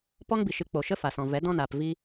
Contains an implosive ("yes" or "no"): no